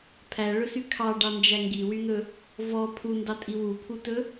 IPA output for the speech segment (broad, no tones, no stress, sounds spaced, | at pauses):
pʰ æ ɭ ɵ s y kʰ ɑ ɖ ɑ n d͡ʒ æ ŋ ɡ i w y n̪ ɵ | v ɔ pʰ u n d ɑ tʼ i w u pʰ u t ɵ